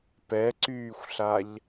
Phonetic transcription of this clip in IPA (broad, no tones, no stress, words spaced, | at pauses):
pɛǀyːxʷɬaʎ